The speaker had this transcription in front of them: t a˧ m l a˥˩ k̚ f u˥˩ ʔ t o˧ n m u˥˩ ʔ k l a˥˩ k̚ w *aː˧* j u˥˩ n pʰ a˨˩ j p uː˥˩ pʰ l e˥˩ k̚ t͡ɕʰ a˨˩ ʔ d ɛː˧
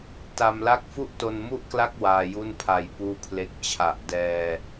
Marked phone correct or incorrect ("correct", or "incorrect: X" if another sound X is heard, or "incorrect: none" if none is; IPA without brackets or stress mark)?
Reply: correct